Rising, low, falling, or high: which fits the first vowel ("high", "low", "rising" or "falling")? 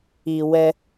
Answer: low